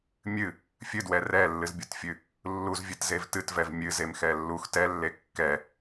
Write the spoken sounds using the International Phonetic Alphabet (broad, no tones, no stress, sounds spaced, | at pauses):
mʲ ɨ | fʲ ɨ d w ɛ r ɛ lː ɨ z bʲ u t fʲ ɨ | lː u z vʲ ɨ t z e v t ɨ t v ɛ v mʲ ɨ z e m x ɛ lː u x t ɛ lː e kː ɛ